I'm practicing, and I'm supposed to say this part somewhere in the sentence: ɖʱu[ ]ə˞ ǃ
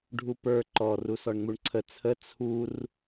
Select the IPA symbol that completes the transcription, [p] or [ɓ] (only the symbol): p